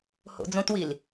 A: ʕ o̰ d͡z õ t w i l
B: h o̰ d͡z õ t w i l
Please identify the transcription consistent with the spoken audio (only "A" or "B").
B